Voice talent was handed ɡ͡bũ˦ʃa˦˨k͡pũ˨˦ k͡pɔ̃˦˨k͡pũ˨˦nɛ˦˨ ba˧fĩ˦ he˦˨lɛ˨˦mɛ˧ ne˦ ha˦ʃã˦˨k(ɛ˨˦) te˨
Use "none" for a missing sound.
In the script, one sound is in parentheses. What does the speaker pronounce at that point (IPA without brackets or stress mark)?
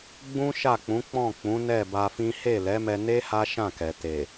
ɛ˨